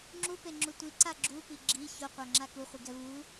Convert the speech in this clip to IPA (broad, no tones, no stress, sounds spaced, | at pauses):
ŋ͡ǁ u p e ŋ͡ǁ u tʷ i ǀ a ɡ͡ǁ u p i ɡ͡ǁ i ç o qʷ a ŋ͡ǁ a k u χʷ i ɡ ɛ v u